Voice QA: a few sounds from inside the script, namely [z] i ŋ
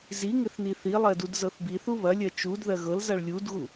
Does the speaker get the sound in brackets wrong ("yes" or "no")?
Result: no